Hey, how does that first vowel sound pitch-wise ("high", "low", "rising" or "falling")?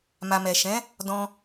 low